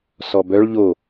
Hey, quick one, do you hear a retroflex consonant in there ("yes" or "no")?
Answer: yes